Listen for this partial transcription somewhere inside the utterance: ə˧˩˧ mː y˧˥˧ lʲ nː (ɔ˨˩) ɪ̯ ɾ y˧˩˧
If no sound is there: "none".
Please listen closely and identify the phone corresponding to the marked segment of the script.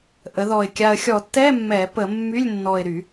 ɔ˨˩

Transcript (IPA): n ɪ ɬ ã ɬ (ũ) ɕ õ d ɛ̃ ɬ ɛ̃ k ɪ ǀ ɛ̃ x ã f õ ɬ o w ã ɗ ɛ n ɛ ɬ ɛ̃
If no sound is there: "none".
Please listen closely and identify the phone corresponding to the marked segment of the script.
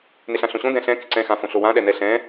õ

